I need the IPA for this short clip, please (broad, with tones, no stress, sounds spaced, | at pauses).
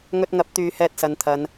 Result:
ŋ ɵ˧ t̚ ŋ ɐ˨˥ p̚ t̪ yː˨ h ɛː˧ t̚ s ɐ˨ n t̪ʰ ɐ˨ n